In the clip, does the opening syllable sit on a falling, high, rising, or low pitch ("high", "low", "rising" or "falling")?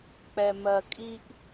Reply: low